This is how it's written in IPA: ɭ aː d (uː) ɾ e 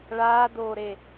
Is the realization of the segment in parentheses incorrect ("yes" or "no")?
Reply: yes